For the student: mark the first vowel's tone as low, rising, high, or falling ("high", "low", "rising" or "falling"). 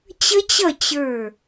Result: high